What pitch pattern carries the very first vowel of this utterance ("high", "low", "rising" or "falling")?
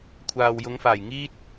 low